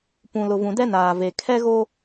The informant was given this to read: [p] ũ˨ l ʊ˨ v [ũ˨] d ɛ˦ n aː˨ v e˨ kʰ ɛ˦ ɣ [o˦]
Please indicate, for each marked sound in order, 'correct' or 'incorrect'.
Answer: correct, correct, correct

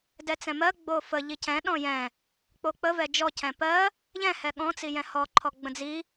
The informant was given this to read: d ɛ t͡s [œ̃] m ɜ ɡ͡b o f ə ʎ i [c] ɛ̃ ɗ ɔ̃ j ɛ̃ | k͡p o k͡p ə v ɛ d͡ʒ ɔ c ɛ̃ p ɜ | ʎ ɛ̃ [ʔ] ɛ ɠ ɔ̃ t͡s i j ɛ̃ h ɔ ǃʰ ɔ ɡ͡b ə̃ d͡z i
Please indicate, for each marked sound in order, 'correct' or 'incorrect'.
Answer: incorrect, correct, incorrect

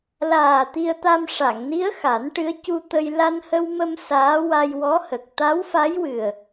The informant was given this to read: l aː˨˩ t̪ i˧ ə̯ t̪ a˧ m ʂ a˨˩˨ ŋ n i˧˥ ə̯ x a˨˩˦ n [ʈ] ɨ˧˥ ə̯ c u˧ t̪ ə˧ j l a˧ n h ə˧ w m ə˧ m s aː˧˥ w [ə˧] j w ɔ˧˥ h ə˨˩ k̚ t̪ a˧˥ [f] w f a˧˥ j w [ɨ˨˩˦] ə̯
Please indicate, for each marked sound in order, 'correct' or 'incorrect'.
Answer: correct, incorrect, incorrect, incorrect

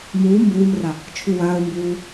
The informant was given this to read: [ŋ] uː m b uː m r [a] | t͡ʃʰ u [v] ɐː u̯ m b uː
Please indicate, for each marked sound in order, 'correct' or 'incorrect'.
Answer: incorrect, correct, incorrect

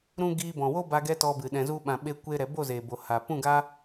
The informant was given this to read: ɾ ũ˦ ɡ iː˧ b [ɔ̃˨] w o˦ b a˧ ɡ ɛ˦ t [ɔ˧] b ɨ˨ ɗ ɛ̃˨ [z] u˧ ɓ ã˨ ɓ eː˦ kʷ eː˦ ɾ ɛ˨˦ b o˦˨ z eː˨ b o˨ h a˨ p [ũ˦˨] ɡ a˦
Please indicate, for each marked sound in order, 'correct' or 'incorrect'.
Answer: correct, correct, correct, correct

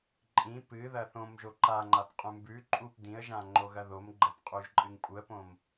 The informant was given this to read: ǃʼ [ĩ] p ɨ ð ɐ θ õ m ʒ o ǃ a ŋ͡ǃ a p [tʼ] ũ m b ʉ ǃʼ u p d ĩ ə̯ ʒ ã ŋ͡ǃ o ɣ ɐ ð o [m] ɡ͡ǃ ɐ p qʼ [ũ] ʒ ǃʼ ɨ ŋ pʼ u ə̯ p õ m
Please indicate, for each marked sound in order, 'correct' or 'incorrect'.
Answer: correct, incorrect, correct, incorrect

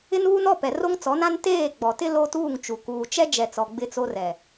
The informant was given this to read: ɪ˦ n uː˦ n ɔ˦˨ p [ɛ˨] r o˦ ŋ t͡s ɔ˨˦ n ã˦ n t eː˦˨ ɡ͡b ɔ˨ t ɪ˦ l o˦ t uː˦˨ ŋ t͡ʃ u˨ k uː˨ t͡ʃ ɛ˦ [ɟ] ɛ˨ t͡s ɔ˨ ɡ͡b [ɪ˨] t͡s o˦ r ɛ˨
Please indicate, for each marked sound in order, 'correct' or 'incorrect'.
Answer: correct, incorrect, incorrect

